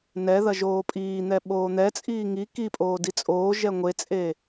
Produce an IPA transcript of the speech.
n ɛ ð ɐ ʒ oː pʼ iː n̪ ɛ ɓ oː n̪ ɛ t͡sʼ iː ŋ i k i pʼ oː d i t͡sʼ oː ʒ ɛ ŋʷ e t͡sʼ e

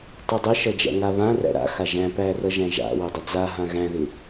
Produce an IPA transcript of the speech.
tˤ u dˤ ɪ ʃ ʌ d͡ʒ æ̰ ŋ a β ã r æ̰ ɾ a̰ x a ʒ æ̃ p æ r ʌ ʒ æ̃ ʒ a̰ w ɪ dˤ ɪ d͡z a ɦ ã ɣ æ̃ ð ɪ

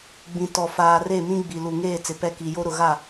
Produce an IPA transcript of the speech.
ɡ͡b ĩ˨ t ɔ˨ f aː˨ r e˦˨ m ĩ˦ ɡ͡b i˨ l u˨ ŋ eː˦˨ t͡s ɪ˨ p ɛ˦ k i˨ j o˦ ɾ ʊ˨ ɣ a˦˨

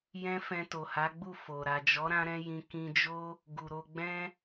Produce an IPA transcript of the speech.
j ɛ̃˦ f ɛ̃˧ t o˨ h a˨˦ ɡ͡b u˦˨ f o˨ ɾ a˨ d͡ʒ ɔ˨˦ ɾ ã˦ ɾ ɛ̃˦ j ĩ˧ k ĩ˧ d͡ʒ o˦ | ɡ u˨ ɾ o˧ ɡ͡b ɛ̃˦

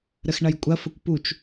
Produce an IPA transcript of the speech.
ɾ ə x ɳ ɐ j kʷʼ ɐ f ə kʷ p u t͡ʃ

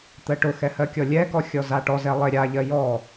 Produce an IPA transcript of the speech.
t̪ ɜ ʈ ʊ x ɛ h ɜ kʲ ɔ lʲ ɛ k ɔ xʲ ɔ z a ʈ ɔ z ɛ lˠ e ɾʲ a ʎ ɜ j ɔ

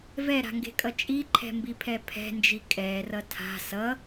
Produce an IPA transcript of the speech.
v ɛ ɾ a̤ ŋ ɡ e̤ kʼ ʌ t͡ʃʼ i ǃʰ ɛ̤ m b i pʰ ɛ pʰ ɛ̤ n d͡ʒ i kʼ ɛ r ʌ tʰ a̤ s ʌ

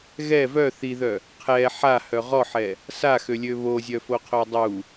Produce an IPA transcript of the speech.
ɣ ɛ v œ θ i ð œ | qʰ ɛ ħ a h œ ʁ ɔ ħ ɛ | s a x ø lʲ ø β o zʲ œ f o qʰ o dˤ u

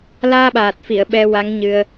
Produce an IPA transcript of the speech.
l aː˧ ɓ aː˨˩ t̚ f i˨˩˨ ə̯ ɓ ɛ˧ w a˧˥ ŋ ɲ ɨ˧ ə̯

